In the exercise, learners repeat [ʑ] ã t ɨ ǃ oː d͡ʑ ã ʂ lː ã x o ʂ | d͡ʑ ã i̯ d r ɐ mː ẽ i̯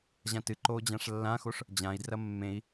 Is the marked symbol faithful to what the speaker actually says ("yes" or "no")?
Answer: yes